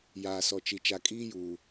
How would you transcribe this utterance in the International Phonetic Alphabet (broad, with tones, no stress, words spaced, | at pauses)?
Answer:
jaː˨sɔ˨t͡ʃi˨ t͡ʃa˨kʼiː˦juː˨